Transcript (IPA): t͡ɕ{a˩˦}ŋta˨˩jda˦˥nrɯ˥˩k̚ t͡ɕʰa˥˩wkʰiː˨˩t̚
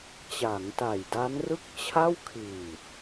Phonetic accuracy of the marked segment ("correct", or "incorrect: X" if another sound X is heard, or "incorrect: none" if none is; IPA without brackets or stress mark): correct